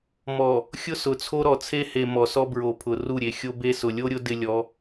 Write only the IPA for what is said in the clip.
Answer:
m ɔ˨ | xʲ ʊ˦ s ʊ˨ t͡sʰ o˦ ɾ ɔ˨ t͡sʰ e˦ h e˨ m ɔ˨ s ɔ˦ b ɹ o˨ pʰ ʊ˨ r u˦˨ ɾʲ e˨ xʲ o˦ b e˦ s ʊ˨ lʲ o˦ ɾʲ ʊ˦ d ɪ˦ lʲ ɔ˨˦

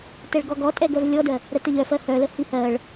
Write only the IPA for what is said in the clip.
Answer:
t ɛ ɭ ɡ ɔ ɡ ɔ tʼ ɛ ɡ œ v lʲ ɔ d ɜ | ɾ ə t ə ʎ œ f ɜ h œ l ə h i h ɜ ɭ

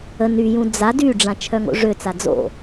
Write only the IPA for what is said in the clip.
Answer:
ə n y j ũ d͡z a d y ɖ͡ʐ ã t͡ʃʰ œ ŋ o̰ ʐ ø t͡s a d͡z o̰

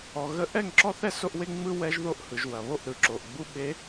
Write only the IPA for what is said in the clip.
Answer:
ɔ˨ ɣ ə˦ ʔ ɛ˦˨ ŋ ǁ ɔ˦ θ ɛ˦ s o˦ ʔ w e˦ ŋ͡m ɯ˦ w ɛ˦ ʒ ð o˦ ʔ h ɯ˨ ʒ w ɐ˨ β o˦˨ ʔ ɾ ɯ˨˦ ǁ o˨ ʔ ɡ͡b u˦ ɓ e˨˦

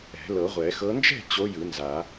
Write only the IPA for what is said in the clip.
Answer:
ɛ̤˨˩˦ l ɤ˨˩˦ ʁʷ ɛ˨˩˦ x ɤ˧˥ n d͡ʒ ɛ̤˥˨ t͡ɕ o˧˥ j ɯ˨˩˦ n z a˨˩˦

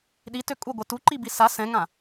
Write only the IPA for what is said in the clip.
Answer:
ɗ i t ø kʼ u ɡʷ ɛ t u ǃ i b i s a s ɛ̃ ŋ ã

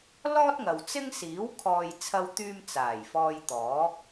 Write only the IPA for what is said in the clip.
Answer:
l ɔː˥ t̚ ŋ ɐ˨ w t͡s ɪ˥ ŋ s iː˨˥ w kʰ ɔː˧ j t͡sʰ ɐ˧ w t̪ yː˧ m t͡s aː˨˩ j f ɔː˧ j t̪ ɔː˨˥ k̚

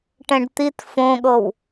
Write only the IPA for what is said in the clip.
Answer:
ʈ ɛ̃ ɖ t̪ i t f õ ɠ ɤ w

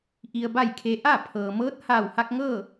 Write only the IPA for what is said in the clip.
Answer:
ʔ i˧ ə̯ b a˥˨ j kʰ e˧ ʔ a˥˨ pʰ ɤː˩ m ɤː˧˥ t̚ h aː˧˩ w h a˧ k̚ ŋ ɤː˥˨

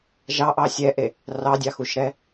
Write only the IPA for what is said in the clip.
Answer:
ʒ ɑ ʔ ɑ sʲ ɛ ʔ e | r ɑ dʲ ɑ x u ʃ ɾ ɛ

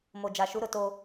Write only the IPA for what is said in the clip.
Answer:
m o˨ d͡ʒ a˨ ʃ u˨˦ ɾ ʊ˨ t oː˦

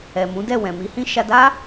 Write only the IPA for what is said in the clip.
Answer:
ɛ˨ m ũ˨˦ d ɛ˦˨ w ɛ̃˨ m i˨˦ h ĩ˦ ʃ a˧ d a˦

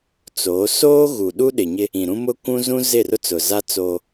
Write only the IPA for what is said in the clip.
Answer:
t͡s oː˨˦ s oː˦ ɣ u˨ ɗ u˦ ɗ ɪ˨ ɲ ɪ˦ | ĩ˨ ɾ ũ˦ m ʊ˦ kʷ ũ˦ z ũ˦ z ɪ˦˨ r ʊ˦ t͡s ʊ˨ z a˦ t͡s oː˦

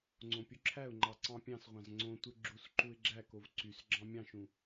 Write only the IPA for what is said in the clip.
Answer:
ŋ͡ǀ õ pʲ u ǁʰ æ ʊ̯ ŋ͡ǃ ɑ ǀ ɑ̃ pʲ ɑ̃ s ʁʷ ɑ̃ z ŋ͡ǀ õ tʷ ɯ ɡ͡ǁ u s ǃ u ɪ̯ ɡ͡ǁ æ k o v ǀ y s ɡ͡ǁ ɑ̃ mʲ ɑ̃ ʃ ũ

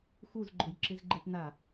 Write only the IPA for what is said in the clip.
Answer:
x u z ɡ͡ǃ ʊ j ǁ ɪ z ɡ͡ǃ e p n a

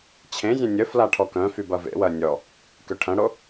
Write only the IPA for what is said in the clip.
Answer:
t͡ɕʰ ẽ zʲ œ̃ nʲ ə f l a ʈʰ ɔ k œ̃ f y b ɐ v ḛ w ɐ nʲ ɔ | k ø ʈʰ ɐ̃ ɽ o

